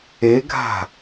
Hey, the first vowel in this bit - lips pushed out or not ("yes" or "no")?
no